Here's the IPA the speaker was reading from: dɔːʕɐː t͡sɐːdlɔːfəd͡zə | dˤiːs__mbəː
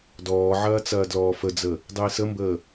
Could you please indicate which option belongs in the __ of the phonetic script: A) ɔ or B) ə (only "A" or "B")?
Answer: B